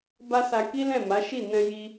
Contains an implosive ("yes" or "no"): no